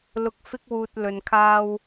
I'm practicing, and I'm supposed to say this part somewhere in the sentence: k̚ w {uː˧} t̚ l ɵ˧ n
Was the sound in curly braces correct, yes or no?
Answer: yes